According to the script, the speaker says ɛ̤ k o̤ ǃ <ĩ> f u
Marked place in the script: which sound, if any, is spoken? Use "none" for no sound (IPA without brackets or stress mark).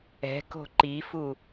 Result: i